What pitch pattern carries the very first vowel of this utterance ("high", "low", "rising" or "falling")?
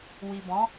low